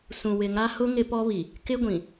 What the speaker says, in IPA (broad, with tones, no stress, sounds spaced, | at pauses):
s ũ˨ w ɪ˨ ŋ a˦ h ʊ˦ ŋ ɪ˦ p ɔ˦ β i˨ | k ɪ˦ ɡʷ ĩ˨